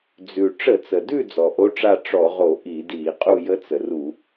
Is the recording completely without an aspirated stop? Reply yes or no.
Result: yes